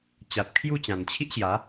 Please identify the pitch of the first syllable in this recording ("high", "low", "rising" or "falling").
low